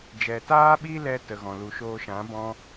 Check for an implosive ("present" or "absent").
present